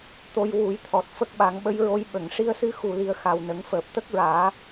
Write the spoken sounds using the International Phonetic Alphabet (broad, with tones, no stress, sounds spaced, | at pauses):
t̪ o˧ j w u˨˩˦ j t̪ʰ ɔ˨˩ t̚ f ə˦˥ k̚ ɓ a˨˩˦ ŋ ɓ ə˧˥ j ɹ o˧˥ j ɓ ə˨˩˨ ŋ ʂ i˧ ə̯ s ɨ˧ x u˨˩ l i˨˩ ə̯ x a˨˩ w n ə˨˩˦ ŋ f əː˨˩ p̚ t̪ ə˦˥ k̚ ɹ aː˨˩˦